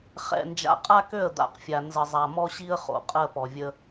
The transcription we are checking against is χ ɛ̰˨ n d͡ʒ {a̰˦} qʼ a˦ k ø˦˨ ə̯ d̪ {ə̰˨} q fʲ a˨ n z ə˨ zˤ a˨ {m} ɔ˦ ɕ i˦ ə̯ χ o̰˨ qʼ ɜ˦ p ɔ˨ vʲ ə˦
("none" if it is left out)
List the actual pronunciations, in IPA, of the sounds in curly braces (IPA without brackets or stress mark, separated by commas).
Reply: a̰˨, a̰˨, m